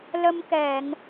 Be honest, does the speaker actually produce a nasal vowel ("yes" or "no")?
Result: no